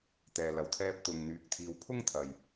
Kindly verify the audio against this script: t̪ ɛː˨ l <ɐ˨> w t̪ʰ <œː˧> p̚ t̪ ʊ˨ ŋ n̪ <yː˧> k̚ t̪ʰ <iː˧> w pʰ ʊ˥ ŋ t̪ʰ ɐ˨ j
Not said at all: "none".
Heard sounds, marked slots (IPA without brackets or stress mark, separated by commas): ɐ˨, ɛː˧, yː˧, iː˧